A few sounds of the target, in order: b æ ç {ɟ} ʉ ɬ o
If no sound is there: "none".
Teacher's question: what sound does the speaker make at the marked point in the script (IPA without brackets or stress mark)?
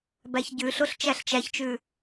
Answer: ɟ